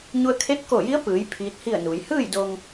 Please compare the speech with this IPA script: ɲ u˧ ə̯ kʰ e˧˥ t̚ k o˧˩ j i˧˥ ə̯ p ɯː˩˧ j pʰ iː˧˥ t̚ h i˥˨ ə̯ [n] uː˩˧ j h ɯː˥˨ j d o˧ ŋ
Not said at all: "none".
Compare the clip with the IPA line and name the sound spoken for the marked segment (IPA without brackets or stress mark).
n